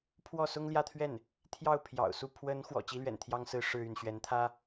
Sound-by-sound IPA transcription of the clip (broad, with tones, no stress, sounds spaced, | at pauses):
pʰ w ɔ˥˩ s ʊ˥ ŋ l j ä˥˧ t̪ʰ ɥ ɛ˥˩ n | t̪ʰ j ɑ˥˩ ʊ̯ pʰ j ɑ̰˨˩ ʊ̯ s u˥˩ pʰ w ə˧˥ n x w ɔ̰˨˩ t͡ɕ i˥ l ɥ ɛ̰˨˩ n t̪ʰ j ɑ˥ ŋ s ɹ̩˥ ʂ ɻ̩˥˧ y˥˩ n ɕ ɥ ɛ˧˥ n t̪ʰ ä˥